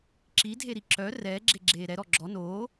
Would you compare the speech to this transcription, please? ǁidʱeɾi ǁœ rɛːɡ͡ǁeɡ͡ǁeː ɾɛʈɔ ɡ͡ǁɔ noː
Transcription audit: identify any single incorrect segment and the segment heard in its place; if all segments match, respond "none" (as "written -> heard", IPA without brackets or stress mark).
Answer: ʈ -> ɾ